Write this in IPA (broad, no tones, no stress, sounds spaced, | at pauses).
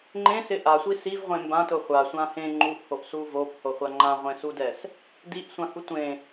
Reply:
ŋ͡ǃ ẽ s ɪ ʔ a sʷ i s i v ʁʷ ẽ m b ã t ʊ χʷ a sʷ ã h ẽ ŋ͡ǃ u ʔ h o ʔ s u v o p h o χʷ a ŋ͡ǃ ã ʁʷ ẽ s u d ɛ s | d i ʔ sʷ ã h u tʷ ẽ